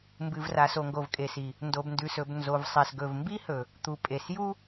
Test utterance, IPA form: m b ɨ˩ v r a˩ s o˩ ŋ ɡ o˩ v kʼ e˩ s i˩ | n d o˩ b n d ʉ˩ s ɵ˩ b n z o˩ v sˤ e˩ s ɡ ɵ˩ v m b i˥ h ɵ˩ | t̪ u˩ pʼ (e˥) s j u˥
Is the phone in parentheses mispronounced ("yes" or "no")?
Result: yes